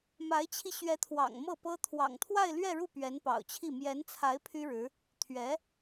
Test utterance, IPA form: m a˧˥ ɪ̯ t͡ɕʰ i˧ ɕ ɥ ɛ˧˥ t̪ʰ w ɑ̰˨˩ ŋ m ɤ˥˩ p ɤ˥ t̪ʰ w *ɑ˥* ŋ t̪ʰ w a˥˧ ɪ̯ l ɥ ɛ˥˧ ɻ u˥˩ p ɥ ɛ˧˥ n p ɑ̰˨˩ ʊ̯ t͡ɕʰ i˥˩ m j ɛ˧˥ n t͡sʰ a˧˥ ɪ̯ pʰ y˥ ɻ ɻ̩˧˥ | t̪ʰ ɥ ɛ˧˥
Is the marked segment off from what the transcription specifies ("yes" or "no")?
yes